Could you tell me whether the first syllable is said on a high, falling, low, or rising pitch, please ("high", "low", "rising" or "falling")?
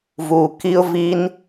low